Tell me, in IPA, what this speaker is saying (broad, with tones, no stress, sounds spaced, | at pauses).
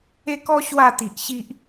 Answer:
e˦ k ɔ˦ ɕ w a˥˧ t̪ i˨ ʔ ɕ i˦ ʔ